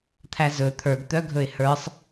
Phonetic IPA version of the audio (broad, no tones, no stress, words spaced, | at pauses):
t̪ʰæzɵ t̪ʰə˞ɡt̪œɡʱɵɪ̯ hə˞sˤ